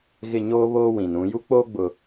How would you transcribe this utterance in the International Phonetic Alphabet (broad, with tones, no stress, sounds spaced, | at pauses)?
ɣ ɪ˦˨ ɲ oː˦ β oː˦ w ĩ˨ n ũ˨˦ j u˦ k͡p oː˦ ɡ͡b ʊ˨